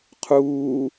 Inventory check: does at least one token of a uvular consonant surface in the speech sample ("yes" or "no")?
yes